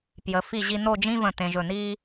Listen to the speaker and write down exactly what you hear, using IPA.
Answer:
p j ə˩˧ f i˧˩ ʑ i˧ n̪ o˥˧ d͡ʒ ĩ˥ v ə̃˧˩ t̪ ẽ˧ ʒ ɵ˧˩ n̪ iː˥

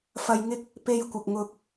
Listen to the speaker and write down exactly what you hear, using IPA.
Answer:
f ɐ˨ j ŋ ɪ˧ k̚ | p e˧ j kʷ ɪ˨ k̚ ŋ ʊ˧ k̚

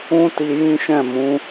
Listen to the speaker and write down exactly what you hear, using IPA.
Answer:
ũ˦ t i˧ j ĩ˦ ʃ ɛ̃˦˨ m ũ˨˦

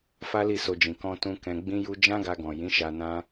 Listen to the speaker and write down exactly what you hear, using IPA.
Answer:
f a˦ l i˦˨ s o˧ d͡ʒ ĩ˨ k ɔ̃˧ t ũ˦ k ɛ̃˧ ɡ͡b ĩ˦ j u˦ d͡ʒ ã˦ ɡ a˧ ɡ ɔ̃˨ j ĩ˨˦ ʃ a˧ n ã˦

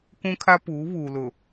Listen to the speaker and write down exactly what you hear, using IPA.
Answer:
k ũ˦ kʰ a˦ p uː˨˦ β uː˨ l ʊ˨

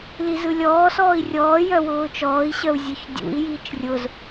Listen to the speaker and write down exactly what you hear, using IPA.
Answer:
l i z ɯ lʲ ɔː s ɔː i̯ rʲ ɔː j œ w ʊː t͡ʃ ɔː i̯ ɕ œ u̯ zʲ œ ç dʲ ṵ i̯ j iː t͡ʃ rʲ ʊ z

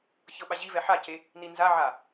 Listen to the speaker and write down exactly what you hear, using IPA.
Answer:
ç ɤ ɓ a ʑ i v ɛ ħ a c e | n i n z a ʕ a

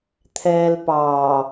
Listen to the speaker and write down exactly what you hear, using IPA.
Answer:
t̪ʰ ɛː l p ɑː

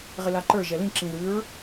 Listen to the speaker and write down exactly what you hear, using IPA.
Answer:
ʁ ɪ l a ǃ ə˞ ʒ ɛ l ĩ ǁ ĩ ð ʉ ɹ

